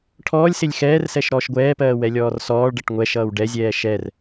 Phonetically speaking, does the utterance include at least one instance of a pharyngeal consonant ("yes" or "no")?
no